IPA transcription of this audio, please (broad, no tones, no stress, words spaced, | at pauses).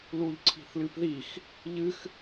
luʎǀʰi̤θlɨpðix | ʎɨx